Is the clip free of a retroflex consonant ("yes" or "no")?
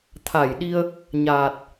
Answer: yes